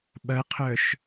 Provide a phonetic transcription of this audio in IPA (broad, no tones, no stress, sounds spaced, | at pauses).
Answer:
ɓ ɐ qʰ œ ʃ